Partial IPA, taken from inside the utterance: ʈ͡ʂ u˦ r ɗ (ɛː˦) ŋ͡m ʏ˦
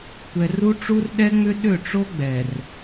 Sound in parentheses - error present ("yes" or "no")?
yes